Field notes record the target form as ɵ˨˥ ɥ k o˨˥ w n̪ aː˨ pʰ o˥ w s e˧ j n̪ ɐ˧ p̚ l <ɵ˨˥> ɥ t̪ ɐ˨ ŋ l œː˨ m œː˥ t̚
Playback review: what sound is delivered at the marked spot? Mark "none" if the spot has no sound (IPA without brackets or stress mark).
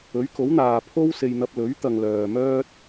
ɵ˨˥